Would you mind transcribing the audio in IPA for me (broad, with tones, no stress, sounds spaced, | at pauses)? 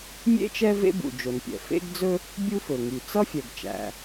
mʲ ḛ˥ t͡ʃ ɛ˥ v ḛ˥ b ṵ˩ d͡ʒ o˩ n pʲ ɛ̰˩ f ḛ˥ ɡ d͡z ɵ˥ | bʲ u˥ f ɵ˩ ŋ y˩ t͡s ʌ˥ fʲ ɛ˩ ɡ t͡ʃ æ̰˩